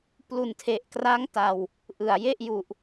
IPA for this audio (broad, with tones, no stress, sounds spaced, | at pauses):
p l u˨˩ n tʰ e˨˩ ʔ k r a˦˥ ŋ t a˧ w | ʔ ɯ˨˩ a̯ j e˥˩ ʔ j u˨˩ ʔ